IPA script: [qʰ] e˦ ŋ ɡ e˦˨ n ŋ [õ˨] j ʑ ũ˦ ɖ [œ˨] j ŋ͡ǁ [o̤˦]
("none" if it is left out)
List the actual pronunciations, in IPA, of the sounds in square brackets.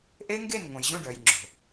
ʔ, õ˨, œ˨, o̤˨

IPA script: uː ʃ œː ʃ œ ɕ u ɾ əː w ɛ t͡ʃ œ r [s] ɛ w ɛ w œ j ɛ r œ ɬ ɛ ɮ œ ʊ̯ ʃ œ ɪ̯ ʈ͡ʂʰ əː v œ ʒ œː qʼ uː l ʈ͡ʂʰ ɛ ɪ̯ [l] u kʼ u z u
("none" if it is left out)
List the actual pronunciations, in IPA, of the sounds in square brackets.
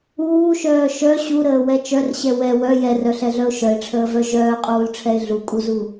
ɕ, ɮ

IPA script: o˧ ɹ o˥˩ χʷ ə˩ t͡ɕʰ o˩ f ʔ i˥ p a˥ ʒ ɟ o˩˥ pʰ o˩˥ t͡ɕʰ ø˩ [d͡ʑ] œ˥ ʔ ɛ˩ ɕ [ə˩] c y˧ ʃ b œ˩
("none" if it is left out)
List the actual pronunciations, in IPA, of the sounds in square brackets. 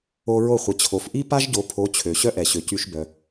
ɕ, ø˩

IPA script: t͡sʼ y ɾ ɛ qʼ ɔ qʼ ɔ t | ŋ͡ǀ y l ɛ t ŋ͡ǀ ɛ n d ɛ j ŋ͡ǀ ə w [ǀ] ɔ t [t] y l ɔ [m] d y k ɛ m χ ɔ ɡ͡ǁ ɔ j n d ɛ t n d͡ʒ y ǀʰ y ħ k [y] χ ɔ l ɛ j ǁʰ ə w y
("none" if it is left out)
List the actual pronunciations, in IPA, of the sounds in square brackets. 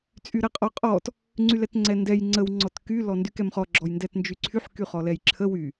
ŋ͡ǀ, k, n, y

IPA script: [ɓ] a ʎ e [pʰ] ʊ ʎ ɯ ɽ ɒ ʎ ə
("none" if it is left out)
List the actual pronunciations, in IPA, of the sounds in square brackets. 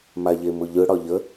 m, m

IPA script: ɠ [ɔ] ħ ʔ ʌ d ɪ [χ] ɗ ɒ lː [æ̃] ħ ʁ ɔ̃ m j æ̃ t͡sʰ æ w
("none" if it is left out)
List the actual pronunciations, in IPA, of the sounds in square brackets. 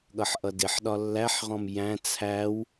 ʌ, ħ, æ

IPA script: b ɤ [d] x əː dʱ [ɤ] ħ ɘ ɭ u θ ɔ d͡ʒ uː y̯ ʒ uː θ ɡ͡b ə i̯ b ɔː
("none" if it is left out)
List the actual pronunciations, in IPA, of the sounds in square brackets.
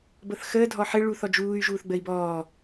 θ, ɔ

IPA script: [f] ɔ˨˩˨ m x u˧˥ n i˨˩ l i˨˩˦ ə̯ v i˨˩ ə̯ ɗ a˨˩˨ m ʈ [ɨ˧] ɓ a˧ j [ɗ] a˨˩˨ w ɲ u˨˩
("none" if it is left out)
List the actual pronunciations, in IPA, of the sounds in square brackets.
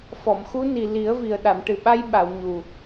f, ɨ˨˩, ɓ

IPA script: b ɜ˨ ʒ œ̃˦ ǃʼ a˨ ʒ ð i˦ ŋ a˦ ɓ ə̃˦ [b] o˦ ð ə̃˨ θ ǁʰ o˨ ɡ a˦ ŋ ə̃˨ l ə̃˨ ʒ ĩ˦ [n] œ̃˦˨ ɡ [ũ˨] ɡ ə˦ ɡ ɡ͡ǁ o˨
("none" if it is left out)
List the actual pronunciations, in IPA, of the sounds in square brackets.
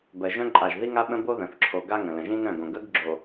b, n, õ˨

